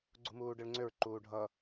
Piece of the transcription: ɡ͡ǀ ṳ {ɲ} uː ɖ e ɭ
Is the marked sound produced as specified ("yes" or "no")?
no